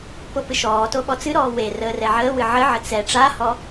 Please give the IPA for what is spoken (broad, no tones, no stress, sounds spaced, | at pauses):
p o p ɨ ʃ ɔː t o ɓ ɔ t͡s ɨ ɾ ɔː w e r əː r ɛ ʕ əː w ɨ ʕ ə ʕ ə t͡s ɛ ʈ͡ʂ a h ɔ